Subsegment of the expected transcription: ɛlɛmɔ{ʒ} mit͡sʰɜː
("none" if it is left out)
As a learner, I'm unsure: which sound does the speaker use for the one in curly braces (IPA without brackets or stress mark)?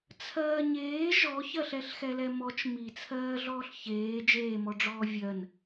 t͡ʃ